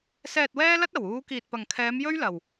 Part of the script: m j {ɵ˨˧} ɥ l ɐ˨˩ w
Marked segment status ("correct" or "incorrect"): incorrect